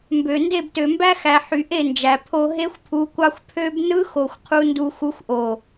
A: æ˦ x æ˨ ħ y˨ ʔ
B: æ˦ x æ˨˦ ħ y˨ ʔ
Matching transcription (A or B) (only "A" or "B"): A